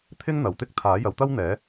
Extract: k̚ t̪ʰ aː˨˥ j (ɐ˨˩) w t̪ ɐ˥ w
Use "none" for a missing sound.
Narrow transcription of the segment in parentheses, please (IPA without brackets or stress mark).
ɐ˨˥